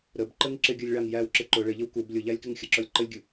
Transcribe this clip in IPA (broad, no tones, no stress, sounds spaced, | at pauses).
ɾ ə b ǃ ə ŋ ǁ ɪ ɡʲ ə˞ lʲ ɭ ɑ ŋ j æ w ǁ ɪ ǃ ʊ ɭ ɪ ʎ ə w k u b lʲ ʊ ʎ æ lʲ k ɪ ŋ xʲ ə ǁ ɔ lʲ ǃ ə lʲ ɡʲ u